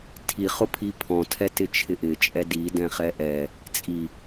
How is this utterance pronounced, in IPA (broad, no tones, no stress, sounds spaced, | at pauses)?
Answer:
tʰ i χ ʊ pʰ i pʰ ɔ̃ tʰ ɛ t ɪ t͡ʃʰ ɪ ʔ ɪ t͡ʃʼ ɛ d i d ɛ̃ χ ɛ ʔ ɛ | t͡sʼ i